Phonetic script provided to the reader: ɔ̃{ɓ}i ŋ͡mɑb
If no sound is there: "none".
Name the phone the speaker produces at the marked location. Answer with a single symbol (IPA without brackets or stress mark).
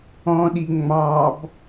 ɗ